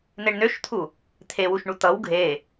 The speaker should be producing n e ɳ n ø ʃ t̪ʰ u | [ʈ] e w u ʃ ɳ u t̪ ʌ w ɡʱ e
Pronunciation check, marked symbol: incorrect: t̪ʰ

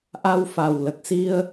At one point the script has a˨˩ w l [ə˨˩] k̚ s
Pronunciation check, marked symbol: correct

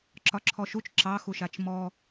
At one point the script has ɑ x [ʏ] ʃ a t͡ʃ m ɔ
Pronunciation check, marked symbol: incorrect: u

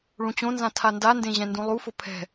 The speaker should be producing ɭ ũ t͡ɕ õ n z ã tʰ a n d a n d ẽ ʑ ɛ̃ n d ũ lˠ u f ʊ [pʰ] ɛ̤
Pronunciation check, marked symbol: correct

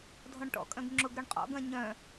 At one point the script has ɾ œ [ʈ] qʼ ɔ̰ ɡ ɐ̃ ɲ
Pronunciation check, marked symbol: incorrect: ɳ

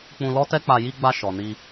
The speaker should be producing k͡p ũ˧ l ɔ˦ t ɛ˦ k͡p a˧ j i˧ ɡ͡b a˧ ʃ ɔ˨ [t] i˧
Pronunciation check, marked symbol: incorrect: n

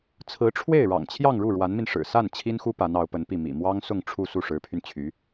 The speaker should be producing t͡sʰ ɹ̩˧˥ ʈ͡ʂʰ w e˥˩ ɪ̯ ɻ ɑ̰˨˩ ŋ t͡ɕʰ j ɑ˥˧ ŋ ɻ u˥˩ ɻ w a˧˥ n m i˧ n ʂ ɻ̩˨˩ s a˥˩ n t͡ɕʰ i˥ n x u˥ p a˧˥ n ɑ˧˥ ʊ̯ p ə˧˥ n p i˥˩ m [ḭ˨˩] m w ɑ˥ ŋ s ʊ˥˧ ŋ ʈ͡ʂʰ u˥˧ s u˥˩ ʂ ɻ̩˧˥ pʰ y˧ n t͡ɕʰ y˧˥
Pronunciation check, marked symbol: correct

